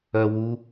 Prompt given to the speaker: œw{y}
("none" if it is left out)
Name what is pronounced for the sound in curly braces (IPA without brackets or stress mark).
u